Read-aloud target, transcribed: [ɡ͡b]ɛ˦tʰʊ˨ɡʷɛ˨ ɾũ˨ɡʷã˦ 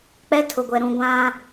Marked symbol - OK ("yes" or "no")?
no